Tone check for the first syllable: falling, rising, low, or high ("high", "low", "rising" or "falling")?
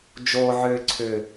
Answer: low